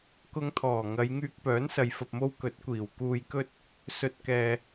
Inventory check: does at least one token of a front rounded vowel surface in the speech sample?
yes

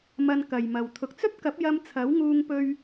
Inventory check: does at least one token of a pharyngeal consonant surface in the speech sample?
no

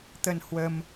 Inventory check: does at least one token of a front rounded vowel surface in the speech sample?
no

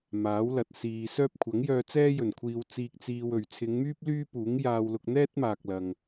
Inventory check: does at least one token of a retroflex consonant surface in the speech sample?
no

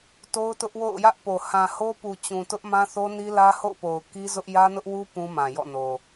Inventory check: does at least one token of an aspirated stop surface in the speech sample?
no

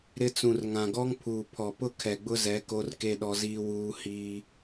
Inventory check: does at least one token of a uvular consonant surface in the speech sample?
no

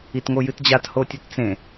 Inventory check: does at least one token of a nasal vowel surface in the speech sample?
yes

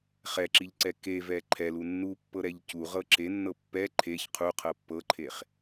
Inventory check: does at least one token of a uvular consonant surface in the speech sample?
yes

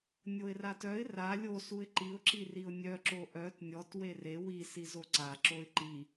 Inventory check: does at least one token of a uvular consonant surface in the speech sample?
no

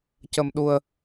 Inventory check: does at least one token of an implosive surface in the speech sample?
yes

